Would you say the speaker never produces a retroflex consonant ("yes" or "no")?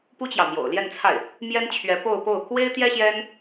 yes